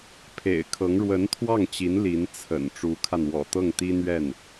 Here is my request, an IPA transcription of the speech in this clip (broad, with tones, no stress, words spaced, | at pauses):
pʰḛ˨˩ɪ̯kʰɤ˧˥ŋ ɻwə˧˥nt̪ʰwɑ˥˩ŋt͡ɕi˧˥n li˧˥nt͡sʰə̰˨˩n ʈ͡ʂu˧˥kʰa˧n wɔ̰˨˩t̪ɤ˥˩ŋt̪i˥n̪ɥɛ˥˩n